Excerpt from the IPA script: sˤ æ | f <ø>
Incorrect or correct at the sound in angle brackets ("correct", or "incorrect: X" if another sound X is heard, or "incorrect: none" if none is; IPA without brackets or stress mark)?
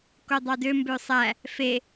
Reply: incorrect: e